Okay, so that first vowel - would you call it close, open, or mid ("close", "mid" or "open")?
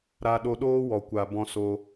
open